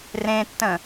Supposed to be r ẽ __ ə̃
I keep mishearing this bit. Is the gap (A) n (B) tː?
B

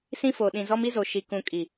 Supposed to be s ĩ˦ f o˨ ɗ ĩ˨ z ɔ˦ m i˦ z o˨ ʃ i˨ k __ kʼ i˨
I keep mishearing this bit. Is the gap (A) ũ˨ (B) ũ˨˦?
A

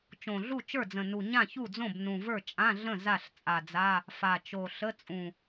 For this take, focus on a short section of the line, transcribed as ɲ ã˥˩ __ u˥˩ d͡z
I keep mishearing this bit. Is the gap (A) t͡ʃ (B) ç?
B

